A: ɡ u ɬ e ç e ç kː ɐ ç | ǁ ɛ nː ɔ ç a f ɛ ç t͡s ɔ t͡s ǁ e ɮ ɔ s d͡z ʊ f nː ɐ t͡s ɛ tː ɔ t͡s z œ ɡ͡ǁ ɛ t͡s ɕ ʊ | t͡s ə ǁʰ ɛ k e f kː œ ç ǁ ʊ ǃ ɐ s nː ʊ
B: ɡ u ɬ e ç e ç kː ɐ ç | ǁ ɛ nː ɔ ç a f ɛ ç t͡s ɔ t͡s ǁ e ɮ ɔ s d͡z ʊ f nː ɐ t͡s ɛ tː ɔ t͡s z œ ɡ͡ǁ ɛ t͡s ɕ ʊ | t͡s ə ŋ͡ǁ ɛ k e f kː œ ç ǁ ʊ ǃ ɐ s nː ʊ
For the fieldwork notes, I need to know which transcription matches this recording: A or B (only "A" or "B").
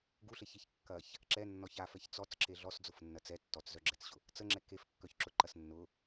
B